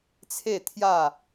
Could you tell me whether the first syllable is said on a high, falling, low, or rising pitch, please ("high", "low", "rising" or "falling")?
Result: falling